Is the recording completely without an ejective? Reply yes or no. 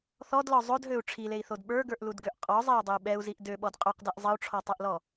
no